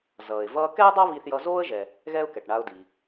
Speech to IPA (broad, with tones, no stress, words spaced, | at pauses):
zʌː˩ɪ̯vʌː˧ kɛ˥ʊ̯dˤa˥ βi˧θjʌ˧zoː˥ə̯ʒɛ˩ | ɣɛ˥ʊ̯kɛ˩ʈɳa˧ʊ̯di˩